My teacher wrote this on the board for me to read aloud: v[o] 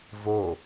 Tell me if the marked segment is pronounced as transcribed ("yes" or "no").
yes